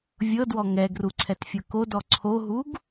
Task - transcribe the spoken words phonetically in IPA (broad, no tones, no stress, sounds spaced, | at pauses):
vʲ ɤ d w ɔ ŋ ɛ ɡ r u ǀʰ ɛ t fʲ ɤ k o d ɔ ǀʰ o ɦ u ɡ